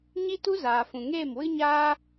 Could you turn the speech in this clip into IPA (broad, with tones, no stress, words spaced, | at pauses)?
ɲi˦tu˦ zaː˨fũ˨ŋeː˦˨mwɨ˦ ɲaː˦